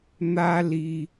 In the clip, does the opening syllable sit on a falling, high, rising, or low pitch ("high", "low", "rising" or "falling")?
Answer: high